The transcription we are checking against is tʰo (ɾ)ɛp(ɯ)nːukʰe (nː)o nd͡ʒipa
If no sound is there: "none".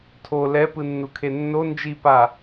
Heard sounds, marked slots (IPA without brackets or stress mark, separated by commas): l, ɯ, nː